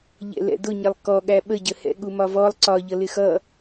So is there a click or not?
yes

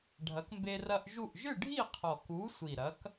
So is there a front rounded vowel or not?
no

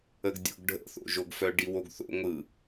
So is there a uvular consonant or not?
no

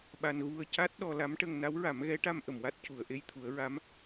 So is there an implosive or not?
yes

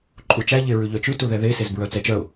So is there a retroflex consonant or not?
no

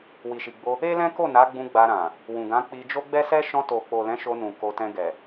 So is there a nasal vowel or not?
yes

